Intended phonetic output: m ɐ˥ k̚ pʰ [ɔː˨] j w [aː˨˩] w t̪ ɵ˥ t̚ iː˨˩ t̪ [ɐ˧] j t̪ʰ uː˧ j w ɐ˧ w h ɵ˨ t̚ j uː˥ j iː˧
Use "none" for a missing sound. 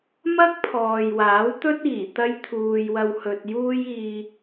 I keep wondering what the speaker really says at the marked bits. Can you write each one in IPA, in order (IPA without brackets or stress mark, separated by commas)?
ɔː˨, aː˨˥, ɐ˥